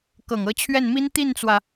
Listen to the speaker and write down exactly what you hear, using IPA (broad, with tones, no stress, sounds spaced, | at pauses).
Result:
k ɤ˨˩ ŋ ɤ˧˥ t͡ɕʰ ɥ ɛ˥˩ n m i˥ n t̪ i˥˩ n t͡s w ä˩